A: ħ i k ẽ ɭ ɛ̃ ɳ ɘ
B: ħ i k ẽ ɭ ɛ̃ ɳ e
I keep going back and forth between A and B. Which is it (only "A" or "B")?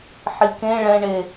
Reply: B